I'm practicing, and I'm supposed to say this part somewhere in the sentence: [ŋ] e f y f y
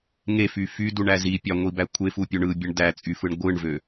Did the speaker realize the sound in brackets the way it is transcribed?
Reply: yes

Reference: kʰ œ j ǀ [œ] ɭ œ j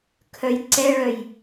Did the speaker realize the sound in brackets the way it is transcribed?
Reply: no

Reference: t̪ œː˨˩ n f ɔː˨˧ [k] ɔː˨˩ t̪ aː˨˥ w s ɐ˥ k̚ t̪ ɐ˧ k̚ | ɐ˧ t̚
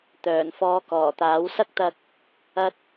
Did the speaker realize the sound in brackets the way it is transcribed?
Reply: yes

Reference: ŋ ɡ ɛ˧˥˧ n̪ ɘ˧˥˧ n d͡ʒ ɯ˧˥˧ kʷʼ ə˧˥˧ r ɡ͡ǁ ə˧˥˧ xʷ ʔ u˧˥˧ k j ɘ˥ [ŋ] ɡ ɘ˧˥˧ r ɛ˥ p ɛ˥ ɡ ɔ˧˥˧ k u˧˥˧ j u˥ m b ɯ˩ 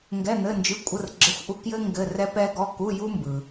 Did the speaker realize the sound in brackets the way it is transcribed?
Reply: yes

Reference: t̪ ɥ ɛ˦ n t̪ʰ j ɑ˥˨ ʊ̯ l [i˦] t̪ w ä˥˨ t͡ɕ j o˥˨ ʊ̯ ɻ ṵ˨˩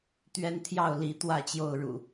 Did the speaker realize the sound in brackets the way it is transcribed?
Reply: no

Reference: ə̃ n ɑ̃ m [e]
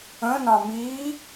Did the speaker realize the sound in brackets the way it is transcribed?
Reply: no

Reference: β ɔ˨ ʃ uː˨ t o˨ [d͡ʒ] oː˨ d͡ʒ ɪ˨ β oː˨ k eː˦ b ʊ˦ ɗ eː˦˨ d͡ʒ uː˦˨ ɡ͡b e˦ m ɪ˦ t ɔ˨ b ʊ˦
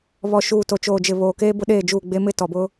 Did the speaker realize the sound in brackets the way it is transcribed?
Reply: no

